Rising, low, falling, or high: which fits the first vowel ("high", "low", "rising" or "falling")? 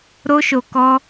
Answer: high